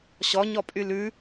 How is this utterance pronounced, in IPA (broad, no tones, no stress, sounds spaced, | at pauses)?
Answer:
ɕ ɔ ɲ ɔ pʼ y l ʉ